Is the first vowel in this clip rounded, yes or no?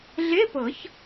no